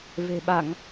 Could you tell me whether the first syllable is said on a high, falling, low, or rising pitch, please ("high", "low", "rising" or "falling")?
low